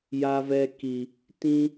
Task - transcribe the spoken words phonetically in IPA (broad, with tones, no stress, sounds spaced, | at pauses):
j a˧ v ɛ˧ k i˨ | t ĩ˦